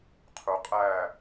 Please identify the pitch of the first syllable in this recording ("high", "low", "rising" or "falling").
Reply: low